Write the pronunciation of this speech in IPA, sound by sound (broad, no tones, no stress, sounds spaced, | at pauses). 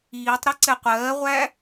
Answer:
iː tˤ ɾ ɛ ǀ ɛ qʷ ɜː ʁʷ æ